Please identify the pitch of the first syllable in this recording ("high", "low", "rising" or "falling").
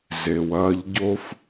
low